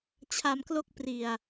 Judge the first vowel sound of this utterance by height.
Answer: low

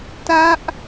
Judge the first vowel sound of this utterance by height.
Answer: low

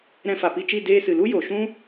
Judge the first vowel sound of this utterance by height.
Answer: mid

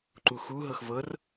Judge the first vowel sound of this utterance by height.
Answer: high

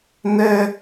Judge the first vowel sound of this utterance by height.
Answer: mid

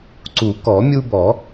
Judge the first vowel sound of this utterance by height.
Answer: high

